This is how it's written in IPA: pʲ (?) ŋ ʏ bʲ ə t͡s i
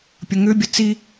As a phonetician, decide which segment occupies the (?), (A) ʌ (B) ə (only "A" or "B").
B